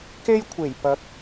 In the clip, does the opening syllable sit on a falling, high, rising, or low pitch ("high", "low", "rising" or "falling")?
high